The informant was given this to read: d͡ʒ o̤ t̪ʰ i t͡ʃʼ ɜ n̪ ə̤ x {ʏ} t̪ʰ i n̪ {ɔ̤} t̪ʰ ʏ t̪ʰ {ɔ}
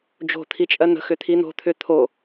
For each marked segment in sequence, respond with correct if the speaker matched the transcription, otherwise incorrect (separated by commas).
correct, incorrect, incorrect